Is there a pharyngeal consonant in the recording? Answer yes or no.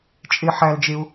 yes